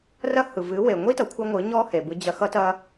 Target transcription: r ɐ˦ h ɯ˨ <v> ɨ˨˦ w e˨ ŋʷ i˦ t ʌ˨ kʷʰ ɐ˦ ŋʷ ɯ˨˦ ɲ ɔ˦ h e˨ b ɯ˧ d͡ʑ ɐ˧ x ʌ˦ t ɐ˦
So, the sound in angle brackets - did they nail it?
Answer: yes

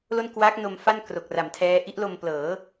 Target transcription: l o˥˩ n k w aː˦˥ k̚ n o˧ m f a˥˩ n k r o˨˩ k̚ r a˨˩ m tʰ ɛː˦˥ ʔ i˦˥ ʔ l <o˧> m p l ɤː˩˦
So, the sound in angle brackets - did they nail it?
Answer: yes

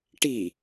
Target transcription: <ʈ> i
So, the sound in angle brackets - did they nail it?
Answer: yes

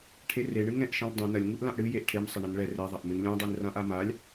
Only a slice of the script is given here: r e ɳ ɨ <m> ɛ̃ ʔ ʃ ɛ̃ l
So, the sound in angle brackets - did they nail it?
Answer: no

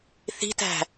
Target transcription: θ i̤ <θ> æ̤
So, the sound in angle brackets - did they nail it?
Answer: no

